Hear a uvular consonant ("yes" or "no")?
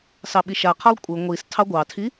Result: yes